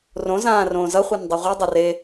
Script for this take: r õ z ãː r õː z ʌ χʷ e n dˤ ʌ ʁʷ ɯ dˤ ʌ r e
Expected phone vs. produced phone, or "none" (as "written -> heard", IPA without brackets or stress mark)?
none